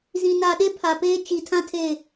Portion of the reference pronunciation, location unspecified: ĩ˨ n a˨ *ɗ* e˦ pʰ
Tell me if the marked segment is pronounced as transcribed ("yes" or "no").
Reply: yes